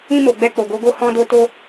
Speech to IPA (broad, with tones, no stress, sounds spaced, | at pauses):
ĩ˧ m o˨ ɡ͡b ɛ˧ k͡p o˨ ɡ o˧ ɡ o˦ h ɔ̃˧ d o˧ t o˧